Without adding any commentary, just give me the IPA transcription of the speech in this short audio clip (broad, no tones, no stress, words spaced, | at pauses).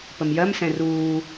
pəmjɜmsɛ̃ ruː